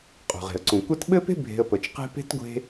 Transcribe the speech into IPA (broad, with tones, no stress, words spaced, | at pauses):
qʼṳ˩ʁe̤˩ə̯ ǀũ˩kʷɛ˦t ɓɘ˥pe̤˥bʱe̤˨ə̯ pə˩t͡ʃqe̤˦pe̤˥t ɡʷe̤˦